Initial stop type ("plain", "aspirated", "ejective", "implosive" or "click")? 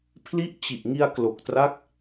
aspirated